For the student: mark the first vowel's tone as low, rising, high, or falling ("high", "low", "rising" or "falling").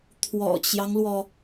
low